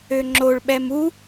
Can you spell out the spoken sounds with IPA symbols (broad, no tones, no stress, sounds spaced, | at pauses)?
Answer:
ø ŋ͡ǁ o ɭ ɓ ɛ m u